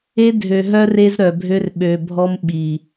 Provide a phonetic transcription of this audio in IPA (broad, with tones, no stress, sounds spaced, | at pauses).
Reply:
e˦ dʱ ø˨ ɦ œ˦ r e˦ z ɾ œ˨ bʱ ø˦ r ɓ ø˨ bʱ ɔ˦ m ɓ i˨